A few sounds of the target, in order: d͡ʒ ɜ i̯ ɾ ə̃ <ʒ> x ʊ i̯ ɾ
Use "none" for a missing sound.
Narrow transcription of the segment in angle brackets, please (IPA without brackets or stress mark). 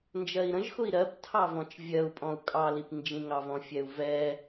ʒ